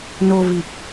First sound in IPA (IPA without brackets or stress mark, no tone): n